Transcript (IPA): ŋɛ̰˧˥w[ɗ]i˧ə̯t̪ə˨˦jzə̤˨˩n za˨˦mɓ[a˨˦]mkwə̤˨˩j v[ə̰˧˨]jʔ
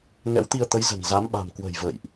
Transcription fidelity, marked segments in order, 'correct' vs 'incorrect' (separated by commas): incorrect, incorrect, correct